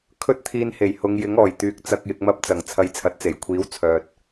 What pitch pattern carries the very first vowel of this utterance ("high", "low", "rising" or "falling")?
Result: high